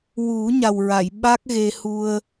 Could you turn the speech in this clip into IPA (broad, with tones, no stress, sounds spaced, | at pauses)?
w u˨˩˦ ɲ a˨˩ w ɹ a˨˩˨ j ɓ a˦˥ k̚ ɣ e˧ h u˧ ə̯